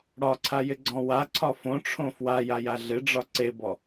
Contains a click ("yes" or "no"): yes